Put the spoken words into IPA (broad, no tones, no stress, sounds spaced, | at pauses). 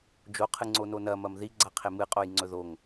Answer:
d͡ʒ o qʰ ɨ ŋ͡ǀ o n o n ɐ m ɐ m ð i ɡ͡ǀ a qʰ e m ɨ qʼ o j ŋ͡ǀ ɵ ð o ŋ